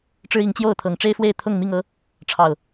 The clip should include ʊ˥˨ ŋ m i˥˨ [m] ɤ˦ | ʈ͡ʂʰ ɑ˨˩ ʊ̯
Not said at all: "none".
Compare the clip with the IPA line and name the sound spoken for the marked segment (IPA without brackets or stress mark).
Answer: ŋ